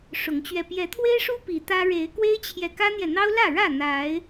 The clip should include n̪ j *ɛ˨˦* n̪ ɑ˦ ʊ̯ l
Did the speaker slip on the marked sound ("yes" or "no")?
yes